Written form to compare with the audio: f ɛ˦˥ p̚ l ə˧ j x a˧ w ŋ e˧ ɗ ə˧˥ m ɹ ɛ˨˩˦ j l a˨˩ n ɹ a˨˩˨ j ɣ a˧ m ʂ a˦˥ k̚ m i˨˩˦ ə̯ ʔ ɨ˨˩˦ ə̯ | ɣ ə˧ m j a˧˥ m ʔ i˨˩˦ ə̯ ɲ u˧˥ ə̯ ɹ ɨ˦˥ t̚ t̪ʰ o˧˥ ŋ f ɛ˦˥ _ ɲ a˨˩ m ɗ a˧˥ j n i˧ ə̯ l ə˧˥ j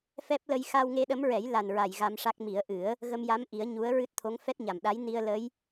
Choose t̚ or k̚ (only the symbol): t̚